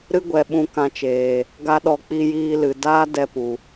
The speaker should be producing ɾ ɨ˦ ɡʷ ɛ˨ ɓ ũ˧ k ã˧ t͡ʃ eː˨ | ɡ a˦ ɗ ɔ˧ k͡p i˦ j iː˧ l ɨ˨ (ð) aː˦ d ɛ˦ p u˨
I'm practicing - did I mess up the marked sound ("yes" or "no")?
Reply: yes